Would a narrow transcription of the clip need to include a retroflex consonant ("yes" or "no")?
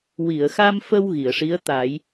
yes